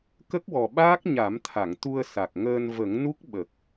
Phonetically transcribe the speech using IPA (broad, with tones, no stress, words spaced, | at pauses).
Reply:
kə˦˥k̚wɔ˨˩ɓaː˦˥k̚ ɲa˨˩˦mt̪ʰa˨˩˨ŋ t̪u˧ə̯sa˨˩k̚ŋəː˧n və˨˩˦ŋnu˦˥k̚ ɓə˨˩k̚